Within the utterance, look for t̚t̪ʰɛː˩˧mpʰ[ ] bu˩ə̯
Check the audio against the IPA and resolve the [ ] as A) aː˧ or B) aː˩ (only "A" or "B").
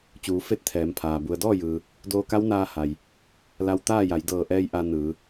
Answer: B